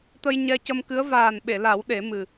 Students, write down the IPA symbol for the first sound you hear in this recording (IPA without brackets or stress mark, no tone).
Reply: t̪